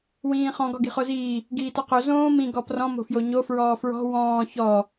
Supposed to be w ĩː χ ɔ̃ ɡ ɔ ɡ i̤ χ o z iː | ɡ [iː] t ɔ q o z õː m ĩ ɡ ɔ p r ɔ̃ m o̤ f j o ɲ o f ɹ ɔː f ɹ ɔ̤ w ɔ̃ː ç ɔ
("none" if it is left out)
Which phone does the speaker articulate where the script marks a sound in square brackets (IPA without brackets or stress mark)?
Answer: iː